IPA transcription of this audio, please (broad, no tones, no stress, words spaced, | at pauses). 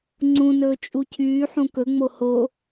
ŋ͡ǀũnɵː t͡ʃʼucʰyːħũ kɵŋ͡mo ho